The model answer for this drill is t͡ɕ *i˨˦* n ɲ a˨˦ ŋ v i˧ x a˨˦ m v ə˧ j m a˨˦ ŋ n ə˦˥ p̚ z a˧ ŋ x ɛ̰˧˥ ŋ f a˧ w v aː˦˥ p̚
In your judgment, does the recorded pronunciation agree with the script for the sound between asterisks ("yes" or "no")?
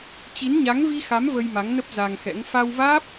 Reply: yes